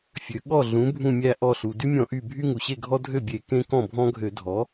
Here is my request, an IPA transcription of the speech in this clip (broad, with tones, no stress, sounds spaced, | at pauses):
fʲ ø˩ ɠ ɔ˧˩ ɮ ũ˩˥ bʱ ũ˧˩ mʲ æ˧˩ ʔ ɔ˧˩ ɬ u˩ d y˦ mʲ ɔ̃˧˩˧ ʔ y˧˩ bʱ y˦ ŋ u˩ ɕ e˥˩ ɡʱ ɔ˦ dʱ ø˥˩ bʲ e˧˩˧ k ẽ˦ k ɔ̃˥˩ bʱ ɔ̃˦ ɡʱ ø˧˩˧ dʱ ɔ˩˥